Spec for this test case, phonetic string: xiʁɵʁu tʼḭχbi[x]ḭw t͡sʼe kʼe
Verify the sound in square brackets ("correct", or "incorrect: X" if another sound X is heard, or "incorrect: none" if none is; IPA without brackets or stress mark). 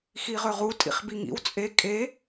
incorrect: ŋ